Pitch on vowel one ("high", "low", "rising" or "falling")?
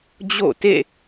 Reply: falling